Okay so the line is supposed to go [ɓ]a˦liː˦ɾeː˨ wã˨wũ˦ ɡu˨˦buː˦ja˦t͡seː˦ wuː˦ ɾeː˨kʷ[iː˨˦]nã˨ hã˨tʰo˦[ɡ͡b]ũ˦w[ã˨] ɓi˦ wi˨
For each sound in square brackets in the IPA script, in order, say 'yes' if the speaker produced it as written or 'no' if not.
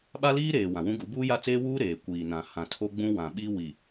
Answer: yes, no, yes, yes

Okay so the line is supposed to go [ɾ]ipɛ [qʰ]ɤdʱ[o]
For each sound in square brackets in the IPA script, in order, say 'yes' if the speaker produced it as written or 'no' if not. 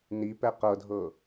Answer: no, no, no

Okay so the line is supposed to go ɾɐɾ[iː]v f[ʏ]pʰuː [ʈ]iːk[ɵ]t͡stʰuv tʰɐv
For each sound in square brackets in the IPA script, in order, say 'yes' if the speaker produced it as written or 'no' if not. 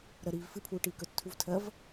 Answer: yes, no, yes, yes

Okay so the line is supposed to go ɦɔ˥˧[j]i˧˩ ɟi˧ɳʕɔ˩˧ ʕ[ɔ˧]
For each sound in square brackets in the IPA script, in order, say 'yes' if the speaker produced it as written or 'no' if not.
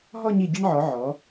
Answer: no, no

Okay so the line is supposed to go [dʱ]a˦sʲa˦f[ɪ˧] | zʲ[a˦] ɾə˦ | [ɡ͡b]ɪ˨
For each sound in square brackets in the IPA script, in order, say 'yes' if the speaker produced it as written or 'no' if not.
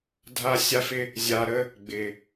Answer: yes, no, no, yes

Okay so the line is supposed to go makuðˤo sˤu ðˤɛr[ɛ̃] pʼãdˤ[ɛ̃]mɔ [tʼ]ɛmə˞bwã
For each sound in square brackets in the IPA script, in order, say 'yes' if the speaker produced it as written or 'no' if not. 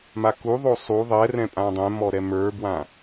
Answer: yes, yes, no

